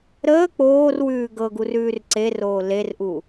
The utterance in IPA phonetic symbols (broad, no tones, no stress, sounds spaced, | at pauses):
ɾ əː k͡p oː r w ʉː ɡ ɤ ɡ u r ʉː r ǀ e r oː l e r ʔ u